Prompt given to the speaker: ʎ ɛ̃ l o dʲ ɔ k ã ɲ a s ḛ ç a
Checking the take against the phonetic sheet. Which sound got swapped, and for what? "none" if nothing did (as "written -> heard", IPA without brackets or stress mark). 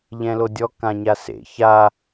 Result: none